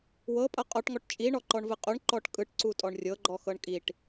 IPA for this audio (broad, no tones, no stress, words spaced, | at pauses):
wɤpʼɤ qʼɔʈŋɔʈ t͡ʃʼi ɳɔǃɔɳvɯqʼuɳ ǃɔʈkʼɯʈ ǀutʼɔɳrʲɤɡ͡ǃɔ xɤɳkʼiʈ